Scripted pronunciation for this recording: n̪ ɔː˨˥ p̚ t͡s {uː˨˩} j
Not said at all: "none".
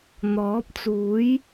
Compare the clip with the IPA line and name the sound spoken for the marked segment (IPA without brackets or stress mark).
uː˨˥